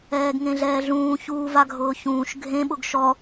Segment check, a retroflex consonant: absent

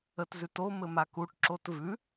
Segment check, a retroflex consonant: present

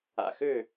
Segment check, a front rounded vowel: present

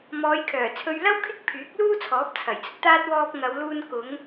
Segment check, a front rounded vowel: present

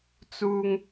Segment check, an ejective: absent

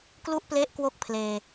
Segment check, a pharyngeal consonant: absent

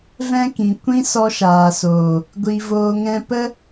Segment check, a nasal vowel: present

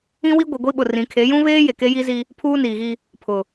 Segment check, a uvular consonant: absent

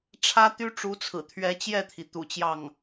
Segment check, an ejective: absent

